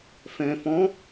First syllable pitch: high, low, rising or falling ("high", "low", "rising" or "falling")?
low